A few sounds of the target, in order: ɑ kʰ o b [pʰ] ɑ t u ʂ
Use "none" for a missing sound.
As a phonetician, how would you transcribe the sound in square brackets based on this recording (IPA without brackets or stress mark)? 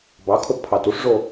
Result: pʰ